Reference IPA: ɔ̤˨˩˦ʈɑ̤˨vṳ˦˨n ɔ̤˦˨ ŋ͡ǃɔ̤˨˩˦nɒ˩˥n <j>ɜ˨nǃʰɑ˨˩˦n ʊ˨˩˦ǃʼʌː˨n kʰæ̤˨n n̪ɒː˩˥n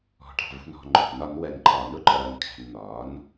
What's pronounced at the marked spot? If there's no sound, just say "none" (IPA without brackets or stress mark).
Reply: w